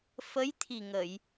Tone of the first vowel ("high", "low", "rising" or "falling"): rising